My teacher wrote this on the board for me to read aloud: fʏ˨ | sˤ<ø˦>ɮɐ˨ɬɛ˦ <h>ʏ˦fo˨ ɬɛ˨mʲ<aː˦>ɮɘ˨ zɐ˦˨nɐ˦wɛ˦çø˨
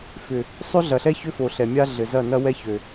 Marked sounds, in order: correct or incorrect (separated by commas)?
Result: correct, incorrect, incorrect